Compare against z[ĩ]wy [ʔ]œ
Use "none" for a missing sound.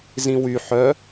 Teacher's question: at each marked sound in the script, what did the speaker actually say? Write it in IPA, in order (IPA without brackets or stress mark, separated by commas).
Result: ĩ, ħ